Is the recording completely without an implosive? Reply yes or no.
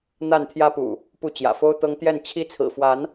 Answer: yes